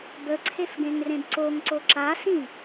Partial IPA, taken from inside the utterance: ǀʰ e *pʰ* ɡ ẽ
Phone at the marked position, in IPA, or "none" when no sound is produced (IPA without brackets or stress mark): f